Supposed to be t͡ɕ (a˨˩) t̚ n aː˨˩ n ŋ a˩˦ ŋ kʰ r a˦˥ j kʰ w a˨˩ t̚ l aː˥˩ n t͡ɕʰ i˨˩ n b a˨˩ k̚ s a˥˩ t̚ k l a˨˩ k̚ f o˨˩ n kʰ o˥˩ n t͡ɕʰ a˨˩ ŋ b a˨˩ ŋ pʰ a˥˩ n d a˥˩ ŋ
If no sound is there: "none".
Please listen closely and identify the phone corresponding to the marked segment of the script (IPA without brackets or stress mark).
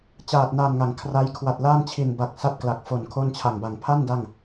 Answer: aː˨˩